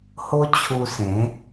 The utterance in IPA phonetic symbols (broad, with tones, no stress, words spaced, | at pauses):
ho˦t͡ɕʰu˧sẽ˨˦